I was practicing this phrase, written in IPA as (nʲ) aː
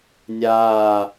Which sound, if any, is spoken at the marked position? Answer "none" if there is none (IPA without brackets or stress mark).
nʲ